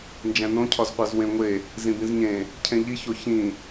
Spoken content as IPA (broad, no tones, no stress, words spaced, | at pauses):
nd͡ʒæ̃nõcʰɒzqʷæz wẽŋʷe | zĩbĩzɲẽ | cʰẽʎiço çĩ